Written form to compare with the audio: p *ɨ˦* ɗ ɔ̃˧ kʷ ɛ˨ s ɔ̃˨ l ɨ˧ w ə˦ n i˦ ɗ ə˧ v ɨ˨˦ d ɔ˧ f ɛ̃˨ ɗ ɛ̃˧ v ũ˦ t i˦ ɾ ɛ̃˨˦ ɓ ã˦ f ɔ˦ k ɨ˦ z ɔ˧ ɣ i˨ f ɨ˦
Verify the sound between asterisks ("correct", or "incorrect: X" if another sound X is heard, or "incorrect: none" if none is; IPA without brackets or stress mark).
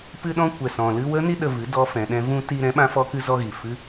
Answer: incorrect: ɨ˧